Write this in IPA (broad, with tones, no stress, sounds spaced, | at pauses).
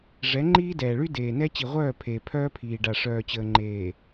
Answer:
ʐ ɛ˨˦ ŋ͡ǃ iː˦ d ɛː˨ ɭ y˦ d eː˨ n ɛ˦ t͡ɕ i˨ ʁʷ œː˦˨ pʰ eː˨ pʰ œː˦ pʰ iː˨ ɖ a˨ ʂ œː˨ t͡ɕ əː˨ ŋ͡ǃ eː˨